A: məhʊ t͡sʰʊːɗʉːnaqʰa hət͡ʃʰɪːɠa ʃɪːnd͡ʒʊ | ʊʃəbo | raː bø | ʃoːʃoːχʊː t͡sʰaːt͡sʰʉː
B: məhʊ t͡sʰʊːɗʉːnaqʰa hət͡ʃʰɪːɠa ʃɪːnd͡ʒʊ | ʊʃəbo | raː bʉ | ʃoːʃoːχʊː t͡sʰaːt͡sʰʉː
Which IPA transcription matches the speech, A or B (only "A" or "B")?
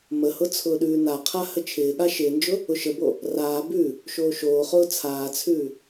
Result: B